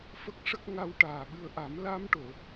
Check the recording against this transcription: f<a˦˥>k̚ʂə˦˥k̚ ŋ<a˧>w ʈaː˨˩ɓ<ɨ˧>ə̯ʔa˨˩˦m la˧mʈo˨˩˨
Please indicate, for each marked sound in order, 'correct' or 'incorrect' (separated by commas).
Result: incorrect, correct, correct